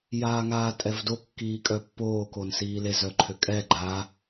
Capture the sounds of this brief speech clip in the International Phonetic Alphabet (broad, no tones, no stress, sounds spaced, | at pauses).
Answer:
j aː ŋ aː tʼ ɛ v d o kː iː kʼ œ pː oː k o n s iː l e z œ ǃʰ ø kʼ ɛ ɡ͡ǃ a